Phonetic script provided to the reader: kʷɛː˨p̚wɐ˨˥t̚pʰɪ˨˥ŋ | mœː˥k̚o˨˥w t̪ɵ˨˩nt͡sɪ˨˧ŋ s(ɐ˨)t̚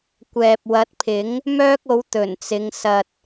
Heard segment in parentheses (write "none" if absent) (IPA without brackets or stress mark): ɐ˨